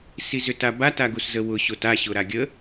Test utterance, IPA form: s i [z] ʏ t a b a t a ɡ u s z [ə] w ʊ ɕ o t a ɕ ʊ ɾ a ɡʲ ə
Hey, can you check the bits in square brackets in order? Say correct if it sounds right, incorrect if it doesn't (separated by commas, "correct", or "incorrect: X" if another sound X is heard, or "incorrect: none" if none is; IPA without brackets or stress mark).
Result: correct, correct